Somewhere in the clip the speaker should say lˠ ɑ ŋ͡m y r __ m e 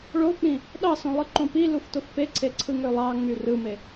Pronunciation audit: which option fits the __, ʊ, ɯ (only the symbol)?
ɯ